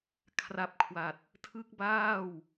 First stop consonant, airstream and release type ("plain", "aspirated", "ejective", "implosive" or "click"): aspirated